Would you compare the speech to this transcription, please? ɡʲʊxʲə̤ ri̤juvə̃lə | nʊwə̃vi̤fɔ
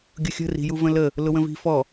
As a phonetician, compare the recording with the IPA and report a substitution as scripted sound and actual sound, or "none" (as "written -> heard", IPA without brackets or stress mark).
n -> l